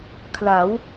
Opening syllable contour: rising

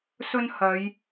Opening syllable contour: high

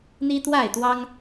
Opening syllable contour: high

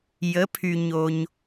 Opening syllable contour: rising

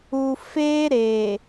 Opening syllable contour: low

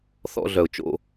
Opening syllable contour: high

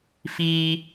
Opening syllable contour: high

